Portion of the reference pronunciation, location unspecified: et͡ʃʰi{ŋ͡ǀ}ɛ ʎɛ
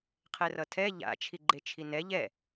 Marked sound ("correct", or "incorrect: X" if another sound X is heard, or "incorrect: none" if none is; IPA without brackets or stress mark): incorrect: n